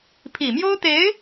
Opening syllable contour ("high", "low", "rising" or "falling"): low